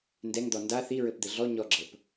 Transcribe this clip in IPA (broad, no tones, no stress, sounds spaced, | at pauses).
n d ɛ ŋ d̪ ɔ n d a θ i ɹ ɘ p d̪ ɘ ɮ ɔ ɲ ɔ ɡ͡ǁ ɤ p